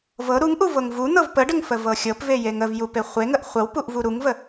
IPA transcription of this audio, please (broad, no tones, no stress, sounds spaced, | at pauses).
v ɤ ɾ u ŋ ʔ u v ɤ ŋ v u n̪ ɤ v p ə ɖ ə ŋ f ə v ɤ xʲ ɤ p v e j e ŋ ə v j u p e χʷ e ŋ ə ʔ χʷ ə w p u ʔ v u ɾ u ŋ v ə